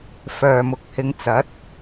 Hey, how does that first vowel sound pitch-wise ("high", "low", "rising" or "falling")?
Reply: low